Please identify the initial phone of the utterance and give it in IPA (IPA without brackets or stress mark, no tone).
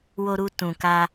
w